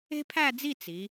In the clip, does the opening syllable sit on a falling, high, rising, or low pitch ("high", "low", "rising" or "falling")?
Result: high